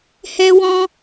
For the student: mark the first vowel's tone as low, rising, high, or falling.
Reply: high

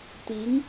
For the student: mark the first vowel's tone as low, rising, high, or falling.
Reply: rising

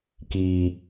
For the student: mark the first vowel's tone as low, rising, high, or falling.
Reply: low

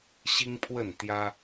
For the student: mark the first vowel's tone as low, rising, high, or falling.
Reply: high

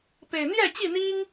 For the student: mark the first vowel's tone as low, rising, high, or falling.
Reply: low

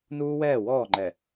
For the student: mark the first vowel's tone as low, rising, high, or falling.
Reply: high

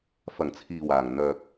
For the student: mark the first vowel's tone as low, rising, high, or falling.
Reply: low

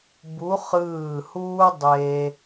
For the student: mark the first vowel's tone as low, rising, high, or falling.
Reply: rising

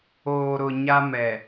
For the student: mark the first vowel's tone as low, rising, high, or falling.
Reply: low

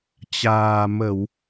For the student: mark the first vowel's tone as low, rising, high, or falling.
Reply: low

